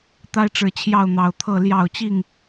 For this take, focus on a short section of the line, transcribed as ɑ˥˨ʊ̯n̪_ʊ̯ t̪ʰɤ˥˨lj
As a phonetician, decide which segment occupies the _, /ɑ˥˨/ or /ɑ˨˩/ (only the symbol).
ɑ˨˩